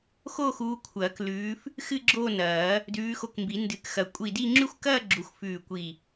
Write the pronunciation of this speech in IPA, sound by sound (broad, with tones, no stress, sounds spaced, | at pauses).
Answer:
x o˥˧ x uː˨˦ kʷʰ ɐː˨˩˦ k l ʉː˨˦ f | x ɨ˥˧ ɡ͡ǁ o˥˧ n ɐː˨˩˦ | d ʉː˨˦ x o˧˩ k m b i˨˩˦ n d ɨ˨˩˦ k x ɐ˨˩˦ kʷʼ i˧˩ d i˥˧ ŋ͡ǁ ʉ˥˧ xʷ k ɐː˥˧ ɡ͡ǁ u˨˦ xʷ f ʉː˧˩ kʷ i˧˩